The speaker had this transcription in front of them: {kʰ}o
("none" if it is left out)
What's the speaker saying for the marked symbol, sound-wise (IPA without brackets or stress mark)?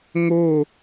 ŋ